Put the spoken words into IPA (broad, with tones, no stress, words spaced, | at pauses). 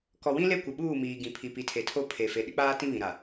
kɔ˨wĩ˦ le˦kʷɪ˨ɓuː˦˨miː˨ ɡĩ˨pʰi˨ pi˨tʰe˨tʰo˦ pʰe˨ fe˨ɗɪ˦k͡paː˦tĩ˦ βĩ˨ɾa˨